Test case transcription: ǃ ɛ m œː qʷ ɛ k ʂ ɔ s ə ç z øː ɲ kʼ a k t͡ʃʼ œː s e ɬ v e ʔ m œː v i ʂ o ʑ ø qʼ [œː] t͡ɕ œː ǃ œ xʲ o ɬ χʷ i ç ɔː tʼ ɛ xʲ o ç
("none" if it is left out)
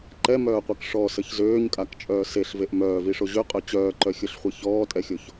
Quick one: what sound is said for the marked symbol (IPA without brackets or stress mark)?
œ